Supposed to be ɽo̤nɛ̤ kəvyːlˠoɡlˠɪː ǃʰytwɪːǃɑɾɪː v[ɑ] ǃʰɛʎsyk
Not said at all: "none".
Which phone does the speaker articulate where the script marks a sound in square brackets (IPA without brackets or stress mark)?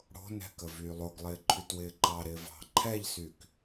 ɑ̤